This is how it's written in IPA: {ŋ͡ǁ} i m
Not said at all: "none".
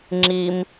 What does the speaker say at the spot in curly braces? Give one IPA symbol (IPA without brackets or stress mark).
ŋ͡ǁ